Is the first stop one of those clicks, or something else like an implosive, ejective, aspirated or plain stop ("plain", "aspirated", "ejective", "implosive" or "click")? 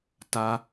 plain